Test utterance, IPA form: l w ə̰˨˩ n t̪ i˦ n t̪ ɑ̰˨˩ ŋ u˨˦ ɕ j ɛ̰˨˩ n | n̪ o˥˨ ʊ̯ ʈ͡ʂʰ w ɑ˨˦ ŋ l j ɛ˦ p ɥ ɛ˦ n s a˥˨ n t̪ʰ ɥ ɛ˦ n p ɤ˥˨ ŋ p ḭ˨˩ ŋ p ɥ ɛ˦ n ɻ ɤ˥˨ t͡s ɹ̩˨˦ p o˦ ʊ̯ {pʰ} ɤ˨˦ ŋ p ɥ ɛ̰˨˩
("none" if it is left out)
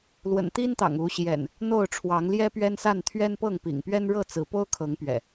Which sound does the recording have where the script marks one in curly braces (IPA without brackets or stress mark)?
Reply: kʰ